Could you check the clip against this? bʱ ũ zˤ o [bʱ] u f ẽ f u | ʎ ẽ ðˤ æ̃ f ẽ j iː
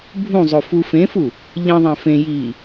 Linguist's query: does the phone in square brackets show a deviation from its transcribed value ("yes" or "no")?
yes